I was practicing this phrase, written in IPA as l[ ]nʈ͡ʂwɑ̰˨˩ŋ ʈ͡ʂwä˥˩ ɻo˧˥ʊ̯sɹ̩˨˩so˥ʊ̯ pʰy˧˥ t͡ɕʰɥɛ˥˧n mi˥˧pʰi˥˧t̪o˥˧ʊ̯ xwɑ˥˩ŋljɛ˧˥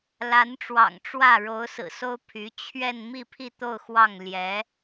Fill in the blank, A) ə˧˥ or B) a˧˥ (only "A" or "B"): B